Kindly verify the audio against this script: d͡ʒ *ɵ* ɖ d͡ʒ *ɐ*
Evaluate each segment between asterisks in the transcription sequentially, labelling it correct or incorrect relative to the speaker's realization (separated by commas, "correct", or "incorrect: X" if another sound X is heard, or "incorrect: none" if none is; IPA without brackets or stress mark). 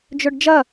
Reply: correct, correct